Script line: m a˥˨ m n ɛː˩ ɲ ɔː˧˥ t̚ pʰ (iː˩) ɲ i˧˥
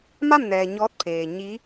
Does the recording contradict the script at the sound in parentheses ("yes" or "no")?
yes